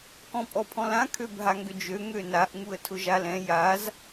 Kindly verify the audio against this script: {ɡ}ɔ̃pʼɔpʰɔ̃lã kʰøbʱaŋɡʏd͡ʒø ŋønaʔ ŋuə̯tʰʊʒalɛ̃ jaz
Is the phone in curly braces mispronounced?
yes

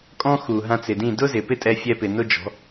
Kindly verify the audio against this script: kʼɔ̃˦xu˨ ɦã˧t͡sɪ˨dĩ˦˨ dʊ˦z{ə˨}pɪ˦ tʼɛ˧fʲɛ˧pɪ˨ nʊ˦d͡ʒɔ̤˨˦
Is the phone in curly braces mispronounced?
yes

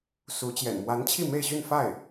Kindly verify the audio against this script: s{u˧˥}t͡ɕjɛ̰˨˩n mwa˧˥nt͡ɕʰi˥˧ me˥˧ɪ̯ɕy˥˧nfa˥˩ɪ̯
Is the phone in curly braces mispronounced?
no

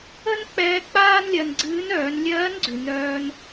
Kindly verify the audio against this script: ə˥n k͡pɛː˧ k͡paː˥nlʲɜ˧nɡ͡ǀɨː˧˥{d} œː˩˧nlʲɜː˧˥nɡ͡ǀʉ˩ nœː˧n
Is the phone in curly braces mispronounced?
yes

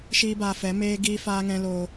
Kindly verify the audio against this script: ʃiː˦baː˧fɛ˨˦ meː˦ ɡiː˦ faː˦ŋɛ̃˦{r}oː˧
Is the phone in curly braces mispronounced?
yes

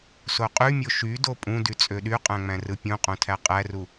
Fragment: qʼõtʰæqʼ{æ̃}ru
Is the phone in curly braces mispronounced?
yes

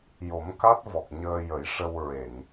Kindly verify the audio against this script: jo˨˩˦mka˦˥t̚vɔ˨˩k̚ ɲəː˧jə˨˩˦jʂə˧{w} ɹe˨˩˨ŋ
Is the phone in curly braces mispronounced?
no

